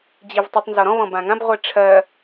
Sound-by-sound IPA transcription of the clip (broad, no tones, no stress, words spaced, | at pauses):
d͡ʑivtˤʊtˤ nzɔɾɔ̃ βɔ̃bãŋãb ʁʷiʈ͡ʂʰɜ